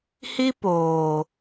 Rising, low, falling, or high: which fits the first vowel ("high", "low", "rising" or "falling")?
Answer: high